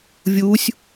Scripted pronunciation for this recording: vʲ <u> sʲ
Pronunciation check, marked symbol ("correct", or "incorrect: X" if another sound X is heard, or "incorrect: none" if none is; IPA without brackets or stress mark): correct